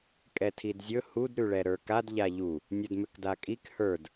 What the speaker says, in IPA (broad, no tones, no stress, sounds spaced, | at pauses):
kʼ ɛ tʰ i d zʲ ɵ h u d ɾ ʉ ɭ ɛ ɾ ə˞ k a d ʎ a ʎ u | nʲ ɵ d m ʏ k d a kʼ i k h ə˞ d